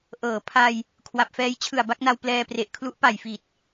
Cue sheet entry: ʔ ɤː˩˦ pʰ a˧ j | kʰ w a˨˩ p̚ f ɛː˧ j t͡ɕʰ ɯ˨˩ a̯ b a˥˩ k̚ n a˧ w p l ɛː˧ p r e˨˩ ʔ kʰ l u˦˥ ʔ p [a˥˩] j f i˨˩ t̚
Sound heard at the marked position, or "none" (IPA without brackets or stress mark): a˨˩